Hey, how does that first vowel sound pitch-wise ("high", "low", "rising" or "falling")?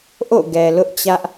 falling